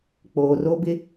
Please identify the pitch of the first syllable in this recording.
low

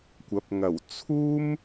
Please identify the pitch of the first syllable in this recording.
rising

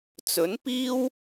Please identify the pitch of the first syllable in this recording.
rising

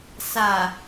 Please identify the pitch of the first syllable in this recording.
low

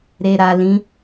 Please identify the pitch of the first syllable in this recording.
low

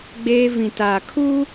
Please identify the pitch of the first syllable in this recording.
high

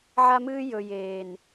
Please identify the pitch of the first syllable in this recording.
high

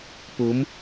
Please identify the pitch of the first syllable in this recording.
rising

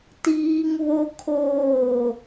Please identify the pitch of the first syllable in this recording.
high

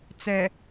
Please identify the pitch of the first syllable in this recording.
low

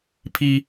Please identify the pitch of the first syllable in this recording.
high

